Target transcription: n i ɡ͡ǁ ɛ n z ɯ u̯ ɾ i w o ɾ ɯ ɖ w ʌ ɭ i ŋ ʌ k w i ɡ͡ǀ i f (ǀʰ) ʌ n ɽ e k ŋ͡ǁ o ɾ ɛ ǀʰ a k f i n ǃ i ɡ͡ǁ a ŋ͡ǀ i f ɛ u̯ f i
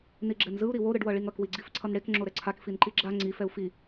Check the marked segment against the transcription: correct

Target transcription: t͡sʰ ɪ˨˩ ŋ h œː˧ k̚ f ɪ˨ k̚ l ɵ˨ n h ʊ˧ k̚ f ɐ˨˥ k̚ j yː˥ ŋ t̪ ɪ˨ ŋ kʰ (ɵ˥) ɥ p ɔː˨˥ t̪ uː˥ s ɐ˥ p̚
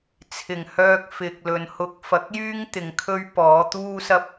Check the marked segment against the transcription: correct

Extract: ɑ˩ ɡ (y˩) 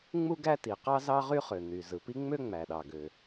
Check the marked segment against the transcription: incorrect: ø˩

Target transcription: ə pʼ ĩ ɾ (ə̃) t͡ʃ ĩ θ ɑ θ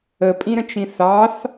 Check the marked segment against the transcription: correct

